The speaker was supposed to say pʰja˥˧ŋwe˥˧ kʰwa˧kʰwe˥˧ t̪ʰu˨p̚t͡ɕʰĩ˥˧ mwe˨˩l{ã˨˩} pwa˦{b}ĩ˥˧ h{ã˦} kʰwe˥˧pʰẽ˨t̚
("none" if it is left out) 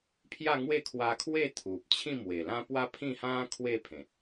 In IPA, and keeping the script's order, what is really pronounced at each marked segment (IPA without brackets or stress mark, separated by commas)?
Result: ã˦, pʰ, ã˦